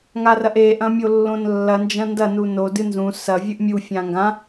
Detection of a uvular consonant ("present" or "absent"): absent